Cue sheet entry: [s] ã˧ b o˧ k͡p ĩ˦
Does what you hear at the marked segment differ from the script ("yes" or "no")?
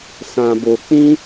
no